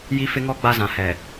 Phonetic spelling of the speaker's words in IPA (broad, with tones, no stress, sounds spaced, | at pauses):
j i˦ f ɪ˦ ŋ ɔ˦ ɡ͡b a˦ z ã˨ h ɛ˨